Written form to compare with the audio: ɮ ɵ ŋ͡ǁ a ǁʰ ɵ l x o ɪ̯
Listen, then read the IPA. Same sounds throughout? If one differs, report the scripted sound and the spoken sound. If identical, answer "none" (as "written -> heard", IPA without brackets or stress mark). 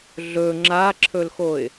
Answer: none